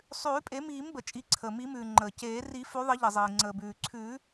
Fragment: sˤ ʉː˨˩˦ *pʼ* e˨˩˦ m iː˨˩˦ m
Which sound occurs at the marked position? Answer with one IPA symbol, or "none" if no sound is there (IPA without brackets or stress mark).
pʼ